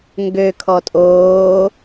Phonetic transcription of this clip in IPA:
ŋ ɡ ø kʰ ɔ tʼ oː

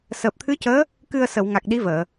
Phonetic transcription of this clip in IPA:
s əː˨˩ p̚ t̪ʰ ɨ˧˥ c əː˧˥ | k ɨ˧ ə̯ s ə˨˩˨ w ŋ a˨˩ k̚ ɗ i˧˥ v əː˨˩˨

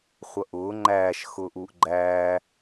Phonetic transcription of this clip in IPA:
χʷ ʌ ʔ ʊː ŋ͡ǃ æː ʃ x ʊː ʔ uː ʔ ɡ͡ǃ æː

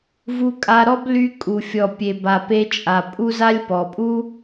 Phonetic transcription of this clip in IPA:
v u˧ kʼ a˧ ɾ ɔ˦ b l y˧ kʼ u˨ fʲ ɔ˨ pʲ e˨ b a˨ p e˧ t͡ʃʼ a˨ pʼ u˧ z a˧ lʲ p ɔ˨ pʼ u˦

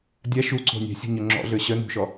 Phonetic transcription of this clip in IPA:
dʲ a ʃ u ǀ o̤ nʲ ɛ̤ sʲ ṳ ɲ ø ŋ͡ǁ ɔ̰ ɮ ø ɕ œ n ṳ ʃ ɔ

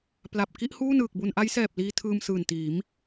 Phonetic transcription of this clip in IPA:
p l a˨˩ p̚ k i˥˩ ʔ h uː˥˩ n ɯː˨˩ k̚ b u˧ n ʔ a˦˥ j s ɛː˨˩ p̚ l iː˧ tʰ ɯː˧ m s ɯː˨˩ n t iː˩˦ m

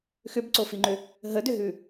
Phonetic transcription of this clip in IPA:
x ʏ b ǀ o f i ŋ͡ǃ ʏ | ɦ ə d ʏ ɦ ʉ

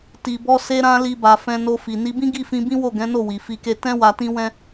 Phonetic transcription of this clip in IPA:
t i˧ b ɔ˦ s e˦ ɾ ã˦ l i˧ b a˨ f ɛ̃˧ n o˧ f i˨ n i˧ b ĩ˦ ɡ i˦˨ f ĩ˧ b ĩ˦ w o˦˨ ɡ ɛ̃˨˦ n o˦˨ w i˨ f i˧ k e˧ t ɛ̃˦ w a˧ t ĩ˦ w ɛ̃˦

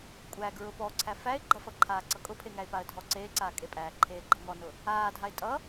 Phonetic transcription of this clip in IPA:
kʷʼ æ ɡ ɹ ʊ p ɔ ǀʰ æ f æ ɪ̯ ɡ͡ǃ ʌ f ʌ ǃʰ aː ǀ ʌ kʼ ʊ pʰ e ŋ æ ɪ̯ p a ə̯ dʱ ɔ ǀ eː ǀ aː kʼ e pʼ æː ǃʰ eː ɡ͡ǃ ʌ ŋ ɔ n ʊ | aː dʱ a ɪ̯ tʼ ʌ

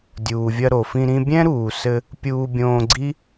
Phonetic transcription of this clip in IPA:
dʲ uː˩ vʲ ɐ˧ ɾ o˩ f ĩ˧ ɾ ĩ˧ bʲ ɛ̃˥ ɾ uː˩ s ɘ˧ | pʲ uː˧ bʲ õː˧ ɡ͡ǀ i˥

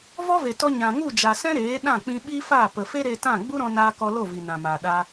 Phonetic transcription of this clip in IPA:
v ɔ˦ v e˨ t ɔ˧ ɲ ã˨ ŋ u˦˨ d͡ʒ a˨ s ɛ̃˦ ɾ eː˨˦ ɗ ã˦˨ k͡p ĩ˧ ɓ i˦ f aː˦˨ p ə˨ f e˦ ɾ e˧ t ã˦˨ ɡ͡b u˦ ɾ ɔ̃˧ n aː˧ k ɔ˧ l o˦˨ v i˨ n ã˨ m aː˨ ɗ a˧

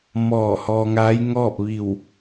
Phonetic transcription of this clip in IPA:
m ɔː˧˩ h ɔː˧ ŋ a˧˥ j ŋ ɔː˥˨ p̚ ʋ i˧˩ w

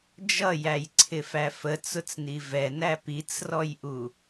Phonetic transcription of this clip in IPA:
d͡ʒ ʌ j æ j ǀʰ ɪ f æ f ə t͡s ʊ t͡s n i v ɛ n æ p i t͡s r ɔ j ʔ u

